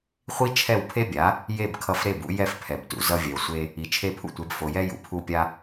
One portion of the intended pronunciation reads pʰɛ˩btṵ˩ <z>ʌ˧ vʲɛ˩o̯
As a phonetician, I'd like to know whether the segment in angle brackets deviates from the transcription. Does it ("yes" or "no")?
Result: no